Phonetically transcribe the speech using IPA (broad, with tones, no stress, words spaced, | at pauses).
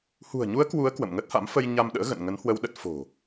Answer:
hṳ˨˩ə̯ɲu˨˦ə̯ kwu˨˦ə̯ kwə̰˧˨mŋə˦˥t̚ha̰˧˥m fə˧j ɲa˧m ɗə̰ː˧˥ɣə̰˧˨n ŋə˨˦nhwə˧wɗə˦˥t̚ fo̤˨˩